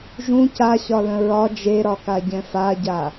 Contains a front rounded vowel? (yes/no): no